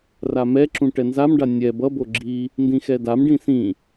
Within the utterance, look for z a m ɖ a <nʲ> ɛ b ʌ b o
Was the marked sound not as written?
no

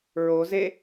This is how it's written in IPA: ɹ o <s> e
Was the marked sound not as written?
yes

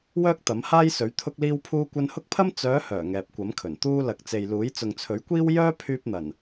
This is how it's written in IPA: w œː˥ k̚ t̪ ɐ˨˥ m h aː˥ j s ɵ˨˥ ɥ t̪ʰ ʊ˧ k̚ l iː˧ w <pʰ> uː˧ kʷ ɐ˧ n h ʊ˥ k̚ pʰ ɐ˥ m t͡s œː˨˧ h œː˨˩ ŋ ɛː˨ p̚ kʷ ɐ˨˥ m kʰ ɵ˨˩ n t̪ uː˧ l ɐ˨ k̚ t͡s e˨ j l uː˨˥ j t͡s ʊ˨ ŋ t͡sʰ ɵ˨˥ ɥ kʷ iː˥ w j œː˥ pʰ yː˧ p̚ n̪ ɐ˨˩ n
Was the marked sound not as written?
no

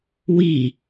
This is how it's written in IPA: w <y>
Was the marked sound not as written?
yes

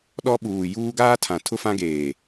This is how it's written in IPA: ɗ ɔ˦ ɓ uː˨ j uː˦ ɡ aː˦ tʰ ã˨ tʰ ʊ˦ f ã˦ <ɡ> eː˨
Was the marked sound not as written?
no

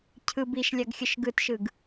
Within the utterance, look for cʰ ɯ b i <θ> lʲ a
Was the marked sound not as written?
yes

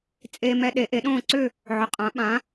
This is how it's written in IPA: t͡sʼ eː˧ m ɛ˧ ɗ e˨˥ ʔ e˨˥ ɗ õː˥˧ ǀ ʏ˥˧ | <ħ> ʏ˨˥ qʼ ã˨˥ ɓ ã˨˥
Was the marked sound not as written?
yes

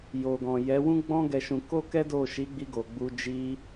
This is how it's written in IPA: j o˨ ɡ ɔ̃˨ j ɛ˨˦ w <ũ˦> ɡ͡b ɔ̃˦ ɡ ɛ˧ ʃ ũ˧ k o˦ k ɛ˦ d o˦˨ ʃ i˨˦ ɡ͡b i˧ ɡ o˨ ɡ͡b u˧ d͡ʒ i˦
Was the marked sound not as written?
no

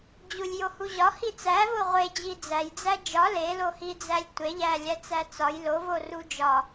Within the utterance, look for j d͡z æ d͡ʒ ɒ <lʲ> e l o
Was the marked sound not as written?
yes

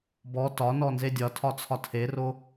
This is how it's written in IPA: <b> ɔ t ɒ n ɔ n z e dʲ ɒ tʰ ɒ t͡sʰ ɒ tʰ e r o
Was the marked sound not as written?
no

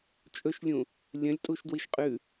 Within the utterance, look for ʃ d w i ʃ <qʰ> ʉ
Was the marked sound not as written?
yes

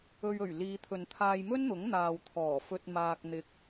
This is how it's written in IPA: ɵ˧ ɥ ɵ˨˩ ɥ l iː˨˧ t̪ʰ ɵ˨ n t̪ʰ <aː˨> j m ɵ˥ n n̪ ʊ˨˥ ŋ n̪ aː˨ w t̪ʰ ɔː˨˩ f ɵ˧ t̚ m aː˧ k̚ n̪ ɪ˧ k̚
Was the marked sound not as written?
yes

